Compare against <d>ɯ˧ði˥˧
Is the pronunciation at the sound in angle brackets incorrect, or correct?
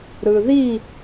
incorrect